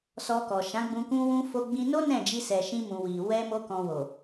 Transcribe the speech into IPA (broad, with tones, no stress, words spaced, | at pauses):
sɔ˧kɔ˨ ʃã˨˦ɡ͡bũ˧ kũ˧wũ˧ fo˦ɡ͡bĩ˦ no˦ nɛ̃˦˨d͡ʒi˧sɛ˨ ʃĩ˧mũ˨ wi˨ wɛ˧mo˧kɔ̃˨ wo˨